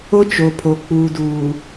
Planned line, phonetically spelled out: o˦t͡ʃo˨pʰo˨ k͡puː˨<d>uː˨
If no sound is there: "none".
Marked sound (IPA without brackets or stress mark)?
d